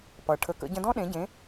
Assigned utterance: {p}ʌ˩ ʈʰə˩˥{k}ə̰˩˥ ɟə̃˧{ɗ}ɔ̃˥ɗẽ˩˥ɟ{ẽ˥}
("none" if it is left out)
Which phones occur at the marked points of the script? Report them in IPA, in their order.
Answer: p, k, d, ẽ˩˥

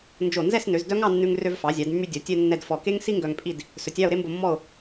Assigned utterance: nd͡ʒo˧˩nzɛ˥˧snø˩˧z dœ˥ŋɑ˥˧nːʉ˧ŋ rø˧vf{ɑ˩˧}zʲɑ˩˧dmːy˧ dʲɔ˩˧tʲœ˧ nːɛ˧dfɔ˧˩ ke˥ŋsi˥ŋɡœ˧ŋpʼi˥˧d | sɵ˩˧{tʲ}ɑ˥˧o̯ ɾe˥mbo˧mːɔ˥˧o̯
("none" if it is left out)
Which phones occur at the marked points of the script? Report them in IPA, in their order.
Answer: ɑ˩˧, tʲ

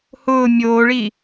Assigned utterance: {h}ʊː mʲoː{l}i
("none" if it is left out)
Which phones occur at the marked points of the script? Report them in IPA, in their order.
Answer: h, ɭ

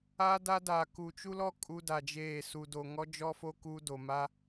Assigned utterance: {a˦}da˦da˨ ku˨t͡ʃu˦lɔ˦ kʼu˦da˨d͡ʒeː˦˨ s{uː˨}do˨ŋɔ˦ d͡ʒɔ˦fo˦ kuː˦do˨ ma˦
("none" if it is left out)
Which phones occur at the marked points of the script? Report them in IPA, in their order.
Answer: a˦, u˨

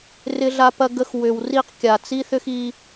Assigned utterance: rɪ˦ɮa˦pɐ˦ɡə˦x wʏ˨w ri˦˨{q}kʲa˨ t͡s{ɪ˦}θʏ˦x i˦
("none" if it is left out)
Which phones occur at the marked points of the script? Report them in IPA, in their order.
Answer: q, i˦

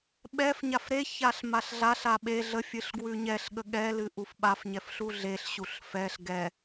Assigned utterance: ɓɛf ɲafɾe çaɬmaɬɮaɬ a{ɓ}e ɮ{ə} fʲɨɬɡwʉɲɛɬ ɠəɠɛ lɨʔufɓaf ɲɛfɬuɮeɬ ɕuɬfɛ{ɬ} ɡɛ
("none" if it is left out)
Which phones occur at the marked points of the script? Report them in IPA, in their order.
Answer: ɓ, ə, ɬ

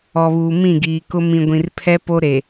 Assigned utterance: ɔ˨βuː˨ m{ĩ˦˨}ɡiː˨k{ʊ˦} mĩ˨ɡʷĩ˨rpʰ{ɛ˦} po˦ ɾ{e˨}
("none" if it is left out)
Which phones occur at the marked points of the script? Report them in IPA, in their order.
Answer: ĩ˦˨, ʊ˦, ɛ˦, e˨

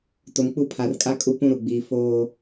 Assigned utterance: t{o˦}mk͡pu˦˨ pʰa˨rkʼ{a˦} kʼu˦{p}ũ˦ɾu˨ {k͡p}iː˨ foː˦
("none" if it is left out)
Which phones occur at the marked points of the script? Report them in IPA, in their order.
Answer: o˨, a˦, p, ɡ͡b

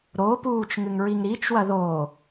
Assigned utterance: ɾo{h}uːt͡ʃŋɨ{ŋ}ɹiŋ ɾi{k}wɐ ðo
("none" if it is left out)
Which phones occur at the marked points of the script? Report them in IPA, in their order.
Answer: p, ŋ, t͡ʃ

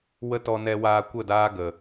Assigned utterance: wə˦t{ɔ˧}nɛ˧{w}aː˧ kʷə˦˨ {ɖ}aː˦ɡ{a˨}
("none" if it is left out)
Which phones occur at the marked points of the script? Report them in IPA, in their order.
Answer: ɔ˧, w, d, ə˨

